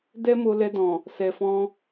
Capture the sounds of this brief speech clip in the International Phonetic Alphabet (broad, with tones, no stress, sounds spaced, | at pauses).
d ɛ˦ m o˧ l ɛ˧ d ɔ̃˨ | s ɛ˨ f ɔ̃˧